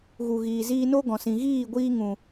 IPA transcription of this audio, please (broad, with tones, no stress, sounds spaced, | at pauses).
ɣ u˨ ɣ iː˨ z iː˧ n o˦ ɡ ɔ̃˨ s ĩ˨ ɣ iː˦˨ ɡʷ iː˧ ŋ ũ˨